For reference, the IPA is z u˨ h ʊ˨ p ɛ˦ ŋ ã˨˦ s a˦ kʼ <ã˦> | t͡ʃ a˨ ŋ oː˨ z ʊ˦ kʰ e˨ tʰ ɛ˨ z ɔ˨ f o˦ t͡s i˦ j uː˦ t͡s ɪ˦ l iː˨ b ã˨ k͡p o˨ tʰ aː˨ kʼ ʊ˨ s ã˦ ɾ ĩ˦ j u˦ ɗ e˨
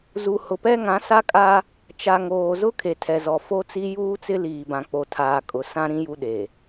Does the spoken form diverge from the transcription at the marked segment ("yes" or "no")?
yes